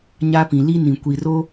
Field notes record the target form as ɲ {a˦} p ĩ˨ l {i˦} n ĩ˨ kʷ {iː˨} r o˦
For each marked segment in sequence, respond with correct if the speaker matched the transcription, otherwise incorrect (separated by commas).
correct, correct, incorrect